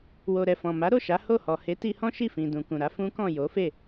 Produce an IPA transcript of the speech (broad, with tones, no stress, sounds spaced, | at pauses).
w o˨ ɾ ɛ˨ f ɔ̃˨ m a˨˦ ɾ o˦˨ ʃ a˨˦ h o˦˨ h ɔ˨ h e˨˦ t i˧ h ɔ̃˦ ʃ i˦˨ f ĩ˨ d ũ˨ k ũ˨ ɾ a˨˦ f ũ˦ k ɔ̃˦˨ j o˨˦ f e˦˨